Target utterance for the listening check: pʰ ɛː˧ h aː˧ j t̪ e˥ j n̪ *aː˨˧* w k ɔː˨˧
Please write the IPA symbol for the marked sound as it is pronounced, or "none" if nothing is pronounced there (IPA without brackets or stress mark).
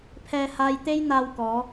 aː˧